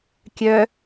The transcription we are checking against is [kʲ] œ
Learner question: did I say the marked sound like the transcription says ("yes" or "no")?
yes